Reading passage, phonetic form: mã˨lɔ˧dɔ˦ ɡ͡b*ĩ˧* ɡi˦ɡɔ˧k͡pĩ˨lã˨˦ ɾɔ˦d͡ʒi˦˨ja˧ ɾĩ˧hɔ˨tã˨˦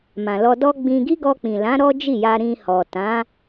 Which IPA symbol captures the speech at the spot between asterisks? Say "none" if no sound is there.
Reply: ĩ˧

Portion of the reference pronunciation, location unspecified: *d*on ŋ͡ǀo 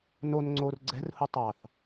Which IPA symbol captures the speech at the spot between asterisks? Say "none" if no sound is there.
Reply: n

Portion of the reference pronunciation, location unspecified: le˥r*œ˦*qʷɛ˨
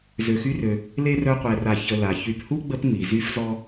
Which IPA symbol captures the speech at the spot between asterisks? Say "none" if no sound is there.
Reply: œ˦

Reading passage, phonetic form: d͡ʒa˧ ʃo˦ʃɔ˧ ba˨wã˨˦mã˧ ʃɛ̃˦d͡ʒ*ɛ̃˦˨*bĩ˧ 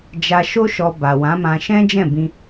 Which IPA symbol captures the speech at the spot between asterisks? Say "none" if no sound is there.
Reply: ɛ̃˦˨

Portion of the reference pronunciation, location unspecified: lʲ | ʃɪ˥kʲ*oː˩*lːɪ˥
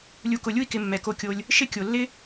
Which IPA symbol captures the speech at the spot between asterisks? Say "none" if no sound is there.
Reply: o˩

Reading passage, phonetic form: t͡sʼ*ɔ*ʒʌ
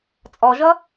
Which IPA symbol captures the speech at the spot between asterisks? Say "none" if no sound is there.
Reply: ɔ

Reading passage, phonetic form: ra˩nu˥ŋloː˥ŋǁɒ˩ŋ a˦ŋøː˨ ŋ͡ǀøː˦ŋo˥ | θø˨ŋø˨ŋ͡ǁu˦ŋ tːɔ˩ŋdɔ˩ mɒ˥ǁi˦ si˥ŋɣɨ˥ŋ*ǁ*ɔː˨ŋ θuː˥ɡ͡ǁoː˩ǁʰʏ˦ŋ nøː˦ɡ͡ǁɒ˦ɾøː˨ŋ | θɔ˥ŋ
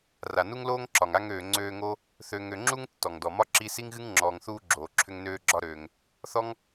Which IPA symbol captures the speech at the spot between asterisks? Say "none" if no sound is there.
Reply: ŋ͡ǁ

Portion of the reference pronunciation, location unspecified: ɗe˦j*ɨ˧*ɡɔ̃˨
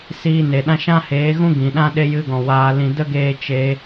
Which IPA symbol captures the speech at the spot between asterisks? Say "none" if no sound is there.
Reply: ɨ˧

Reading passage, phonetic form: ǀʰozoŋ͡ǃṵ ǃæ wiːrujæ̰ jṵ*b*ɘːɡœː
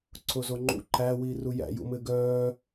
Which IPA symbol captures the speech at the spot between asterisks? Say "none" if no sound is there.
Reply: m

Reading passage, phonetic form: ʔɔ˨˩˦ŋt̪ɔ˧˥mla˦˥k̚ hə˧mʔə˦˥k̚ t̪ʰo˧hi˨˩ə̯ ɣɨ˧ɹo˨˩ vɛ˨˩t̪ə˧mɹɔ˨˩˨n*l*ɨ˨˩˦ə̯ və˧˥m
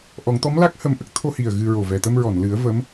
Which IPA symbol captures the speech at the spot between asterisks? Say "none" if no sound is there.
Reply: l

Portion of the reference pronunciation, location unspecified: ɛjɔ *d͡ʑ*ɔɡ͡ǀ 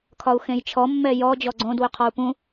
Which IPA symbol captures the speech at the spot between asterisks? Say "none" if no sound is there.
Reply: d͡ʑ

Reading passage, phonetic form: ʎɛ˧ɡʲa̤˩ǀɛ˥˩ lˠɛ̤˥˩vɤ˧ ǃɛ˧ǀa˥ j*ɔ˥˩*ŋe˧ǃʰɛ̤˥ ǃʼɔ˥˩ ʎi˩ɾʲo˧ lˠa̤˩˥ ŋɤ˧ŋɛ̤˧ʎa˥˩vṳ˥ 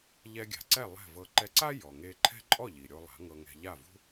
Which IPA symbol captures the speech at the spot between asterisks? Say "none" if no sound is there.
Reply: ɔ˩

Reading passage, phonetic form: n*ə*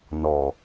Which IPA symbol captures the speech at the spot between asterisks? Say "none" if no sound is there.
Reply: ɔ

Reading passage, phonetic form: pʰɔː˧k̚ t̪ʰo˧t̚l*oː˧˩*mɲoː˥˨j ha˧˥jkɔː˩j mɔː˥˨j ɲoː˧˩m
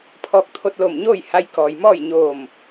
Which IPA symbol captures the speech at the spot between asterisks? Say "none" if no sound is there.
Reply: o˧˩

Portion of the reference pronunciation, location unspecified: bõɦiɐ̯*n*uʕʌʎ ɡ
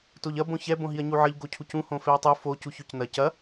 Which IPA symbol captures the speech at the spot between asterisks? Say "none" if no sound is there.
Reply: ɲ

